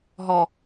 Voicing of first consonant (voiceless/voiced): voiced